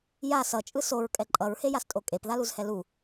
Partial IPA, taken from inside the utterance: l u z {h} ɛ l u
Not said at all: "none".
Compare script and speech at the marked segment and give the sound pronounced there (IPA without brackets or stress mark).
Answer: h